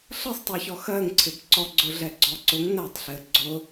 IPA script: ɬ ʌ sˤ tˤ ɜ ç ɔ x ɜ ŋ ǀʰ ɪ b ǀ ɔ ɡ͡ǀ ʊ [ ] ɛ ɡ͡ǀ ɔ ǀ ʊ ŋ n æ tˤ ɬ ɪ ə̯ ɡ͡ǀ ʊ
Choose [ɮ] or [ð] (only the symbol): ɮ